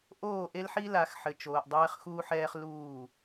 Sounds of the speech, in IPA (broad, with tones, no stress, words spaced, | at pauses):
ʔoː˦˨ʔe˦lħi˦ la˨˦xħɘ˨ t͡ʃoː˨ʔdˤɛː˦χxuː˦ħ ɛː˦χluː˦˨